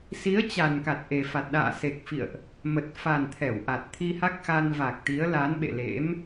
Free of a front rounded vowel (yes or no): yes